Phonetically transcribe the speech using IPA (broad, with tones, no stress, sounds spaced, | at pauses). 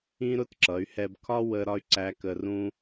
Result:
ĩ˥ ɾ ʊ˥ t ǁ ʌ˩˧ y̯ h ɛ˧ b kʰ ɒ˥ w ə˧ ɾ ɒ˥ y̯ ǀ æ˧˥ k ə˧ r ũ˥